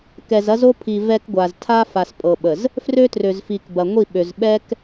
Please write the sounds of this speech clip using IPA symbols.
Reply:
k ɛ˨ z ɐ˦ z o˦ pʰ i˨ v ɛ˦ k ɡʷ a˨ z tʰ a˦ f a˨ s pʼ ɤ˨ ɓ ə˨ z | f r ø˦ t r ø˨ z f i˨ k b ɐ˨ ŋʷ i˦˨ ɓ ø˨ z ɓ ɛ˦ k

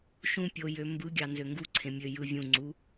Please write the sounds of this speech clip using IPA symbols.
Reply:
ʃ ũ pʲ o j ø m b ɯ ɡʲ ɑ n z ø ŋ ɡ u ǀʰ ẽ mʲ ø j ɯ vʲ ũ ŋ͡ǀ u

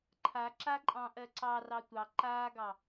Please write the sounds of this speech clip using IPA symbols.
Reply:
ǃʰ a ǁ a ǃʼ ɑ̃ ʔ ɜ ǀ ɑ r ɑ tʷ ɑ ǃ aː ɡ ɑ

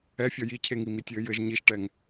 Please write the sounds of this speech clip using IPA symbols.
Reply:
ɛ fʲ ɔ j i cʰ e ŋ i m i tʲ ɘː j ɘ ʒ ɲ i ʃ ʈ ɛ ŋ

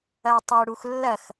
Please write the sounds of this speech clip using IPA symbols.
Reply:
ɐ u̯ tˤ ɐ u̯ ɽ u x lː ɐ x

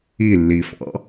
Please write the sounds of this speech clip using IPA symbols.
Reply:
i lː i f ɑ̰

